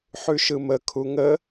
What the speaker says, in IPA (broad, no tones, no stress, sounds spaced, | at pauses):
ħ ʉ ʃ ɯ m ə kʰ u ŋ ə